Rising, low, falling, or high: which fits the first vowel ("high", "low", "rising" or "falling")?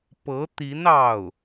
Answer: rising